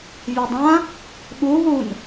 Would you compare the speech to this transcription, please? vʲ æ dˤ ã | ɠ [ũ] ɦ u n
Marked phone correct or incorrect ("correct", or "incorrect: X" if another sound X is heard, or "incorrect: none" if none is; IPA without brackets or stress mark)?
incorrect: u